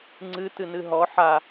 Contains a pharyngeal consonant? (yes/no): yes